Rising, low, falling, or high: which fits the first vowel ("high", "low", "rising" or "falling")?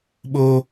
high